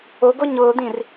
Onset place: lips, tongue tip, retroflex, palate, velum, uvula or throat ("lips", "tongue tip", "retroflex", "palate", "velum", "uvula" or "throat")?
velum